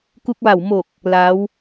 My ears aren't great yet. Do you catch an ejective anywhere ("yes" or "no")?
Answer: no